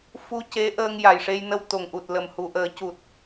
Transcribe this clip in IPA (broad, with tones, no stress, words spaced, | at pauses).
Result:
fu˧ce˧˥ ʔəː˧ŋja˨˩jʂe˧jnə˧w t̪o˨˩ŋʔu˨˩t̚lə˨˩m hu˨˩ʔəː˨˩˦cu˨˩t̚